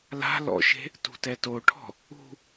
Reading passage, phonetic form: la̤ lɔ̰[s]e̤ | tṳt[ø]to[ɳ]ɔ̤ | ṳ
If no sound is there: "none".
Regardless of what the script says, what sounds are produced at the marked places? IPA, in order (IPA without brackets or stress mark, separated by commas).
ʃ, ɛ, ʈʰ